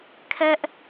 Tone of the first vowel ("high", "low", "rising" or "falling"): high